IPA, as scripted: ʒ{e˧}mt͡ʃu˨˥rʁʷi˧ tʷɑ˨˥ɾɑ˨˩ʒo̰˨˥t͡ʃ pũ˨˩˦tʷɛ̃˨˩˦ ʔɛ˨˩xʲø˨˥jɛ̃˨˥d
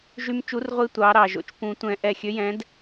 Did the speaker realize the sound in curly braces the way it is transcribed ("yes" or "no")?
no